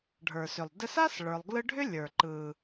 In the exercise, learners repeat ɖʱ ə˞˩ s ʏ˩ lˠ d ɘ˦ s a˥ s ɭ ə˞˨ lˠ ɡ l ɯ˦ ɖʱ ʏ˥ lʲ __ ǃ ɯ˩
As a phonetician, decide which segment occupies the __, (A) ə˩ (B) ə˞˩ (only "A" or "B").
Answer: B